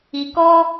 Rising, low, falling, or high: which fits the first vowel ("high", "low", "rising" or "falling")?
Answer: low